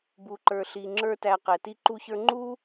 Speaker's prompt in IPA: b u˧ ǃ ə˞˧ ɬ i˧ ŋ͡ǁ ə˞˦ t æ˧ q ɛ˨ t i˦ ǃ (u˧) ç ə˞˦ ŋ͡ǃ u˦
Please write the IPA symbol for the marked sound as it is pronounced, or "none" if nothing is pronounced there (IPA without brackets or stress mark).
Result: u˦